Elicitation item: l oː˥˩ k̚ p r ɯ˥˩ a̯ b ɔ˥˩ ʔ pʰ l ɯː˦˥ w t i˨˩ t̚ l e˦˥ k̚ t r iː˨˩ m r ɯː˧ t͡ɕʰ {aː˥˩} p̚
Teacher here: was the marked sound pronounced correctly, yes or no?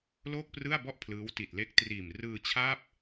yes